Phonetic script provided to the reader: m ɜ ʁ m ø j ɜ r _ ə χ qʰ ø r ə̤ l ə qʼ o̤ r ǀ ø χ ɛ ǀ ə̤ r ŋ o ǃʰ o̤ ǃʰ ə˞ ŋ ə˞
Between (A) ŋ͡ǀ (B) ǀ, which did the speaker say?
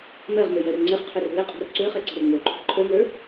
A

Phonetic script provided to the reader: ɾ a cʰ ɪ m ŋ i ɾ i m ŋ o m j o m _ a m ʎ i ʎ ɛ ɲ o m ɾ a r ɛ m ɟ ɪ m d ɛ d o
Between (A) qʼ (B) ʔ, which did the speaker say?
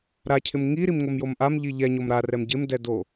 B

